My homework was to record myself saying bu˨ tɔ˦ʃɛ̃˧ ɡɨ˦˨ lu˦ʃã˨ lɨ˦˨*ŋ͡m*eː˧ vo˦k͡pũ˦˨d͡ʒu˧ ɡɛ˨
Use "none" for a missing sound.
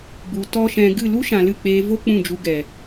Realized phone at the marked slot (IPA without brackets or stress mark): k͡p